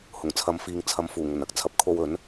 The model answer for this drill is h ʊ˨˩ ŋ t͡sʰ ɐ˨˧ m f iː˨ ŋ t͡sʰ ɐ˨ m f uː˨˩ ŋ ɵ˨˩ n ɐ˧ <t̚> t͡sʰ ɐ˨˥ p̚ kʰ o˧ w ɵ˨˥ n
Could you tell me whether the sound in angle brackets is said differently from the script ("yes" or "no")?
yes